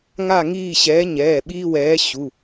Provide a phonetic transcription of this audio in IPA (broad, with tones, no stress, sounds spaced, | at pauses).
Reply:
ŋ a˥˨ ŋ iː˥˨ ɕ ɛː˨˥ ɲ ɛː˩˧˩ ɓ iː˦ w ɛː˨˥ ɕ u˩˧˩